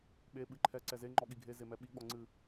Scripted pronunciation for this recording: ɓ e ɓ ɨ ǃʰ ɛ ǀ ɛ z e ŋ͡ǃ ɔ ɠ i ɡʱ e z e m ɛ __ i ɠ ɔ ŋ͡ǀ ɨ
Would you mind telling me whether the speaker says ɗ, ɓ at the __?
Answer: ɓ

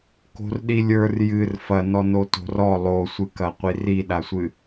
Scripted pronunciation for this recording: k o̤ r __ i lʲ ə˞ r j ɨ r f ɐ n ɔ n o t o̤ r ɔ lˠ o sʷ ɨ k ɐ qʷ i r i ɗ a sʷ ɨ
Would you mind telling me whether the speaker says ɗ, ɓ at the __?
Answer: ɗ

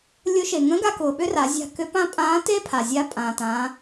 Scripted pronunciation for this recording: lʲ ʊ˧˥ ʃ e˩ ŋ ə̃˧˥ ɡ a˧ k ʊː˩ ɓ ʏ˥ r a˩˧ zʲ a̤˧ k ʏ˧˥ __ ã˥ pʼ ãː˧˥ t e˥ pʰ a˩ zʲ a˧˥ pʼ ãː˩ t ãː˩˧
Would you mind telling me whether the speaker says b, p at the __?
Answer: p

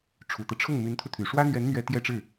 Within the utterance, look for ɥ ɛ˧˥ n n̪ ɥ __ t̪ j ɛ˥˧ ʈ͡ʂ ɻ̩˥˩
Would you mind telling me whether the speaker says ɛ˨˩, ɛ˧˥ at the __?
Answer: ɛ˧˥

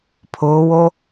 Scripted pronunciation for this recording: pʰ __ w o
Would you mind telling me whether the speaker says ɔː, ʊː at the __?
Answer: ʊː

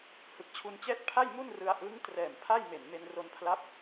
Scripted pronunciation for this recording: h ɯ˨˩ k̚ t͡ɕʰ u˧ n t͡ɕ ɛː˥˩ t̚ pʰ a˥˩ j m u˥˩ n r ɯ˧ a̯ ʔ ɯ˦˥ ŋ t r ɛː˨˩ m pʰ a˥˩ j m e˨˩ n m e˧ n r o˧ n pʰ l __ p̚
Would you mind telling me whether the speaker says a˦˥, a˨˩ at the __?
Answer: a˦˥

